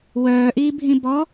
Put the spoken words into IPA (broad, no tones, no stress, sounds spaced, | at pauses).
w œː ʔ iː bʱ ĩ b ɔ